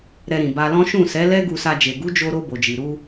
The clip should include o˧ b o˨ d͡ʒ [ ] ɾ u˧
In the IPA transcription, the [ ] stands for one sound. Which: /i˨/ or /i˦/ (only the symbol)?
i˨